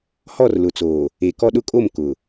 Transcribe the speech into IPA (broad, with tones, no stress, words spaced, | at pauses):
hɔ˦˨rlʊ˨t͡soː˨ | e˨kɔ˦ɗʊ˦kʼo˦˨m kʊ˨